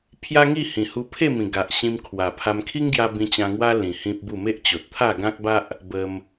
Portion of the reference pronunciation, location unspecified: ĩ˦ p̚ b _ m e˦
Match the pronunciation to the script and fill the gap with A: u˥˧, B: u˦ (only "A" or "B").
A